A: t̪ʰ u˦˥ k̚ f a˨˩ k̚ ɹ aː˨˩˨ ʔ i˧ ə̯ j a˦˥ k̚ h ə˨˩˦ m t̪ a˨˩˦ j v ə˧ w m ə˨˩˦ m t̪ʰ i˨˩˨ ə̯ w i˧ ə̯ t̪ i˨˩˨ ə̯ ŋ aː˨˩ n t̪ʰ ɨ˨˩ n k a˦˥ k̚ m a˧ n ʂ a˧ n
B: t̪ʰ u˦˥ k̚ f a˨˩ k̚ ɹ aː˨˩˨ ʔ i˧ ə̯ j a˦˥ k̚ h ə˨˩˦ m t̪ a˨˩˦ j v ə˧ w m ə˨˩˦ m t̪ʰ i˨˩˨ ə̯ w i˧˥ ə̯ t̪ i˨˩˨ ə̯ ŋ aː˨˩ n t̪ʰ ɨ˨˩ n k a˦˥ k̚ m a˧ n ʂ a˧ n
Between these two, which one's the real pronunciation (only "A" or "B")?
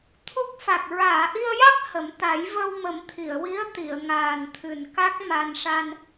B